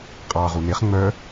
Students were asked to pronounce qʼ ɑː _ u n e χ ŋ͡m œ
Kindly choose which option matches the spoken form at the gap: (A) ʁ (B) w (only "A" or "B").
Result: A